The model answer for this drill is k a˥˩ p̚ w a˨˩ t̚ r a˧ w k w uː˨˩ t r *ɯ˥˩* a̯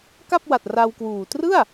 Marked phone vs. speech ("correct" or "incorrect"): correct